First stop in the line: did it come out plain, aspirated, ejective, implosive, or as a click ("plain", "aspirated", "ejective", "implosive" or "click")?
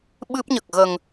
implosive